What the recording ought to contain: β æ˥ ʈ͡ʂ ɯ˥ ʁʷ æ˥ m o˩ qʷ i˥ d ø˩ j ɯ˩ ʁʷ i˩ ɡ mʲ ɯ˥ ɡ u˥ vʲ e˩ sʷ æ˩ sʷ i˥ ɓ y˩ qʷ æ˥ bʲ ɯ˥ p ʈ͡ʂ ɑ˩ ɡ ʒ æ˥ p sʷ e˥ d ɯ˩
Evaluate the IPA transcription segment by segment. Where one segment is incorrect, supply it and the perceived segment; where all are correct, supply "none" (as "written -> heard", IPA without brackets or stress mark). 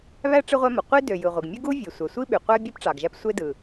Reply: none